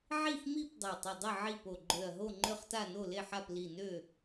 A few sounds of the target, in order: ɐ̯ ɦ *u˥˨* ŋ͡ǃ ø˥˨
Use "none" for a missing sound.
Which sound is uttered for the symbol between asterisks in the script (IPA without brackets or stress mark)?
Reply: o˥˨